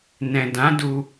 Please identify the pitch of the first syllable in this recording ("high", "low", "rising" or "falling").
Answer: low